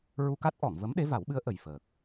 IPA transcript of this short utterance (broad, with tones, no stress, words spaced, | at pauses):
ɹu˧ka˦˥t̚ʔɔ˨˩˨ŋvə˧˥m ɗe˧˥va˨˩˦wɓɨ˧˥ə̯ ʔə˨˩jfəː˨˩k̚